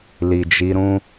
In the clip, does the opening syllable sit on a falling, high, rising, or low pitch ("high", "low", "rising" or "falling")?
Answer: low